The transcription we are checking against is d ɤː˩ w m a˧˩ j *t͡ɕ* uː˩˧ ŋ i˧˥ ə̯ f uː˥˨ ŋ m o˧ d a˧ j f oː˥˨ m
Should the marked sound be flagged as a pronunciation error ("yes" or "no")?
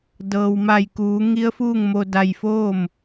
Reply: yes